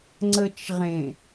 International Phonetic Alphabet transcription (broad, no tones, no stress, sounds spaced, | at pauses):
ŋ͡ǀ ə t͡ʃ ʁ ẽ